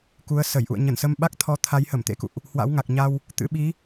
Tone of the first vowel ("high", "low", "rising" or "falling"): rising